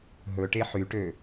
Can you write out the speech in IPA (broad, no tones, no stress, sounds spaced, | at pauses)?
ɦ ɵ ʈ e ħ y ʈ ø